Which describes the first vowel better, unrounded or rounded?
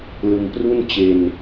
unrounded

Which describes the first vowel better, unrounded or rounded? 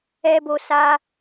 unrounded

